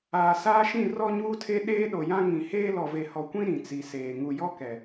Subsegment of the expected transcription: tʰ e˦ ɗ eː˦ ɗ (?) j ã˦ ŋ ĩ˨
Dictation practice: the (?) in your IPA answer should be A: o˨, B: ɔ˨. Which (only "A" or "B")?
A